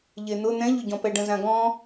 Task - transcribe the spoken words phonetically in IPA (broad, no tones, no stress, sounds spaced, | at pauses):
ʎ e n̪ ʊ n̪ ɛ̃ ʎ ʊ ɟ ɔ̃ p ɛ ɖ ə̃ z ã ɡ ɔ̃